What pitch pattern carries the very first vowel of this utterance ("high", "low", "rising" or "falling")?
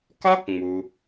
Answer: high